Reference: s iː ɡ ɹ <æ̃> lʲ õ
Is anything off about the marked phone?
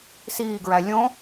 yes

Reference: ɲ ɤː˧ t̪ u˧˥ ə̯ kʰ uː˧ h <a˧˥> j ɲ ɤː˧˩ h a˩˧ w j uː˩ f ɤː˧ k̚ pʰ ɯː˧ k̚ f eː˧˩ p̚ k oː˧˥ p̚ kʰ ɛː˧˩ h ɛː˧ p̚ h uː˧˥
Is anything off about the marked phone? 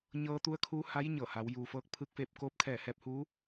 no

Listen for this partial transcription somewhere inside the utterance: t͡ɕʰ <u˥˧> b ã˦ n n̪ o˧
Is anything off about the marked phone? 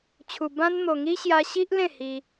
yes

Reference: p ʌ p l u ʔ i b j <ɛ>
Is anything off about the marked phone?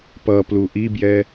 no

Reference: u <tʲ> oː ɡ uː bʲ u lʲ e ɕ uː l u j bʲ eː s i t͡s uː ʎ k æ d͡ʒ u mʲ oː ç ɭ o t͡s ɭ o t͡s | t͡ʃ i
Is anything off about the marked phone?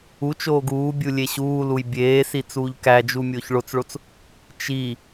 yes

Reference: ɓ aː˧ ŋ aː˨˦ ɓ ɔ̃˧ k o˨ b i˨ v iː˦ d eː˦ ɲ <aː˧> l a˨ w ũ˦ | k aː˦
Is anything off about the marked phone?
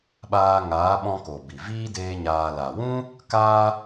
no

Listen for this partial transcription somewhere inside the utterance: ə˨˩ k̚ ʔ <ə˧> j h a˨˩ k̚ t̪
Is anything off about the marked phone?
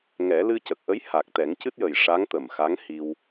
yes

